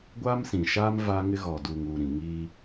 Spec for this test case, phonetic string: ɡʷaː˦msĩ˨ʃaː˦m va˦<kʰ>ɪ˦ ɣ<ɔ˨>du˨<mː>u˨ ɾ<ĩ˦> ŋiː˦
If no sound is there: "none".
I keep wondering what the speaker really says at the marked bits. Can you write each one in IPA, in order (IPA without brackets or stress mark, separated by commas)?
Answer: ŋ, ɔ˨, ŋ, ĩ˨